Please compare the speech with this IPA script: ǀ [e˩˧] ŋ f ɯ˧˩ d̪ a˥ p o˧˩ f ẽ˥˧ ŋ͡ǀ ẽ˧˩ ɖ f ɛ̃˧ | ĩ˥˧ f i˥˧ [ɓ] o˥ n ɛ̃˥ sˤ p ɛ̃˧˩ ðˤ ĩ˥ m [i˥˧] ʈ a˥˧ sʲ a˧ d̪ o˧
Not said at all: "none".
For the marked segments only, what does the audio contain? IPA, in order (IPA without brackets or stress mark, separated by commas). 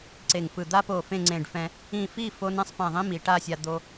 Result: e˧˩, f, i˩˧